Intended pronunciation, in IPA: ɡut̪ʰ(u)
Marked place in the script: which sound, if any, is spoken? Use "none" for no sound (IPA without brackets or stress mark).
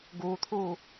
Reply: uː